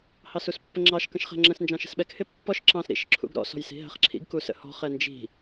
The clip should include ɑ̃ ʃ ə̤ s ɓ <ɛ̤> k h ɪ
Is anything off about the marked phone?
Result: yes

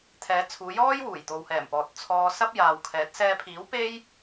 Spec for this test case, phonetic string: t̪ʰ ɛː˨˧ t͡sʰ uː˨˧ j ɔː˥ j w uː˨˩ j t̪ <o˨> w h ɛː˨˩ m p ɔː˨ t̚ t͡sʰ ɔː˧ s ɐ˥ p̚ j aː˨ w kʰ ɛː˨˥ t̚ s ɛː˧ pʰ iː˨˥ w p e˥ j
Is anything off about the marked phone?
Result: no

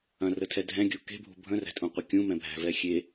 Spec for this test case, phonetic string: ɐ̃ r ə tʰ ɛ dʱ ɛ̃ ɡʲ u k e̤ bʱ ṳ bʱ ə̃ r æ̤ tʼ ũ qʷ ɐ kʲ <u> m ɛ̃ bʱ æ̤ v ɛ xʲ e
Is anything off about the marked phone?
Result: yes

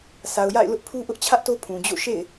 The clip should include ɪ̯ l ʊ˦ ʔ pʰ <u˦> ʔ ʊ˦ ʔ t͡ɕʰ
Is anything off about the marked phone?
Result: no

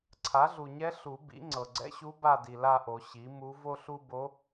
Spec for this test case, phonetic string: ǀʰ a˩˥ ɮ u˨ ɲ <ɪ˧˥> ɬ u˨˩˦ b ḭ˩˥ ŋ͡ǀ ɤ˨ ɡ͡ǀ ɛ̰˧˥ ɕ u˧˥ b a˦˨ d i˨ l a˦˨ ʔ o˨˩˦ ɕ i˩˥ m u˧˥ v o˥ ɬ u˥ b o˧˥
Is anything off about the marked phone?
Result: yes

